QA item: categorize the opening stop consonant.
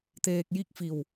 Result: plain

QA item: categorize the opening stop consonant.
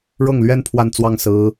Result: aspirated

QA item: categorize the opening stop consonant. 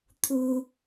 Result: aspirated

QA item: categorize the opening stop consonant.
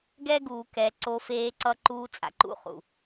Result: plain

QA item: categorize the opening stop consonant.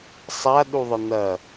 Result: implosive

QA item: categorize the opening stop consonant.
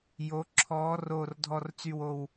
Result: click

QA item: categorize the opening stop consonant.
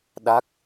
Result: implosive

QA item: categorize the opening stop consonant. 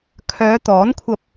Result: aspirated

